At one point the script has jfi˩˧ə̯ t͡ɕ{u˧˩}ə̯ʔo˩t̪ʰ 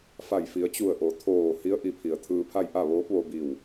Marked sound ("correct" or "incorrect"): correct